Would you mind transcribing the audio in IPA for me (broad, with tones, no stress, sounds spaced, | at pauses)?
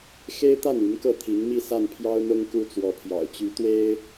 x e˥ ɪ̯ t̪ a˥˩ n y˧˥ n k ɤ˥˩ t̪ʰ i˧˥ ŋ m i˥˧ s a˥˩ n pʰ j ɑ˥ ʊ̯ n̪ ʊ˥ ŋ k u˥ t͡s w ɔ˧˥ pʰ j ɑ̰˨˩ ʊ̯ t͡ɕ y˧˥ t̪ w e˥ ɪ̯